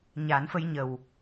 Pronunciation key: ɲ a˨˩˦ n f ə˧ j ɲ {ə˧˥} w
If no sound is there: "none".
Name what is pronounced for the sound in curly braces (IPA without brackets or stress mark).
ə˨˩